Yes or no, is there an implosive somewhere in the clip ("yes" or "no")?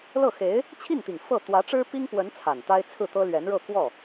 no